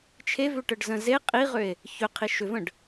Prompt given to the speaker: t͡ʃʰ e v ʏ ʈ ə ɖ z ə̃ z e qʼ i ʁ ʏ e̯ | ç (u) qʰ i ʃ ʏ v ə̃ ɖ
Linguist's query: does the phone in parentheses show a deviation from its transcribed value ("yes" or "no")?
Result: yes